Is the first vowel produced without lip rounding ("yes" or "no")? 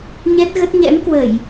yes